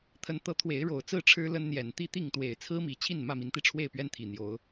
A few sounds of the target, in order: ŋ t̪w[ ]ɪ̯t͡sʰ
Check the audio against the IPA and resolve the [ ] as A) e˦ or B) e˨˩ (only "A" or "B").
B